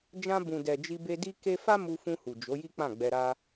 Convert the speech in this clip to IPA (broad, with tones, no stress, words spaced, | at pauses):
d͡ʒã˧bũ˨dɛ˨ d͡ʒi˧be˧di˦ke˦ fa˦mu˧fũ˧hu˨ d͡ʒo˨˦ji˦ k͡pã˦˨ɡ͡bɛ˧ɾa˦